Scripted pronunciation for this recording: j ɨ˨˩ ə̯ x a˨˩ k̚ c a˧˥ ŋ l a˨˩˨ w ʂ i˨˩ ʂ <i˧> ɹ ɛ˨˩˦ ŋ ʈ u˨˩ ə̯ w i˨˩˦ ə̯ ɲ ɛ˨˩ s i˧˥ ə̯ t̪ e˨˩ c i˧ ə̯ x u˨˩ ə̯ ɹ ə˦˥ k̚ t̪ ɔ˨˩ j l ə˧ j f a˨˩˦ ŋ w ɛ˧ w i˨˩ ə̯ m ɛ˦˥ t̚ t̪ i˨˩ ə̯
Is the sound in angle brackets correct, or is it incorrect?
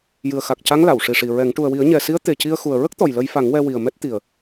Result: incorrect